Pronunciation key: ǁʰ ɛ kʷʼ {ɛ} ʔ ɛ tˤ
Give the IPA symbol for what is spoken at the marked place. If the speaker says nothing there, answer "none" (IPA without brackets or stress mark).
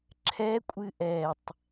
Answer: ɨ